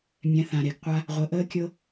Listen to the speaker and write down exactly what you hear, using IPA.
mʲ ɛ̃˧ θ ã˨ ɾ e˨ ɡ qʷ a˦ | ʁʷ ə˨˦ ʔ əː˦ kʲ ɤ˦

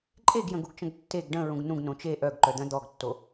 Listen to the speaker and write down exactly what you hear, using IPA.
ǃʼ e ɡ j ə̃ ɡ u ɡ t͡ʃ ə̃ ɡ tː e ɡ ɖ ə̃ ɹ ũ ɡ n ũ ɡ n õ t͡ʃ e ʔ œ ɡ ǃ œ d̪ œ̃ d̪ ɔ ɡ tː o

